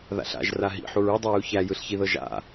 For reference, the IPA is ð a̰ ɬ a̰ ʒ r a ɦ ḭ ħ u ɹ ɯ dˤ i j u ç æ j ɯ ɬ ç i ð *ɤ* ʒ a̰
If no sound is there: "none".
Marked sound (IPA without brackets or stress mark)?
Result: ɤ